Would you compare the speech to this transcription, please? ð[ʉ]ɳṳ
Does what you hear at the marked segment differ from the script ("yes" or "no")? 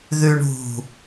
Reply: no